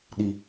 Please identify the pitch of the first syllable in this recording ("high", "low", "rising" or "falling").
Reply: low